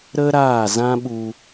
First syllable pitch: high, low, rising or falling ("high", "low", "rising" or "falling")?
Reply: high